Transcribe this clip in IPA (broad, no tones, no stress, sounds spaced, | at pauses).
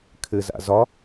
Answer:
kʰ ɘ z a̰ z ɒ